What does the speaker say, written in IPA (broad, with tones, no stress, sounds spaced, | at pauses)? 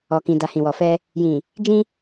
ɔ˨ k ĩ˨ d a˨ h ĩ˨ w ɔ˨ f ɛ˧ | j ĩ˨ | d͡ʒ ĩ˧